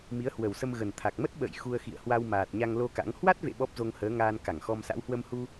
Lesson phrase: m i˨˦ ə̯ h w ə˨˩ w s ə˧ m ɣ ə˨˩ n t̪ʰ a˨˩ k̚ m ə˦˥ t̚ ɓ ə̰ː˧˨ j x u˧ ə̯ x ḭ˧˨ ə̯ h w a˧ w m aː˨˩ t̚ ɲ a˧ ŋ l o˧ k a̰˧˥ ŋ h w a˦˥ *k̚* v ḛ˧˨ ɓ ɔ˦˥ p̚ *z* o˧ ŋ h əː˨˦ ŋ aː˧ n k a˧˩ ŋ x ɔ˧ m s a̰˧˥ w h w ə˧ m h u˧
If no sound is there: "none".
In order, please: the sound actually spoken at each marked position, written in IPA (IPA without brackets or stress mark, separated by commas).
t̚, z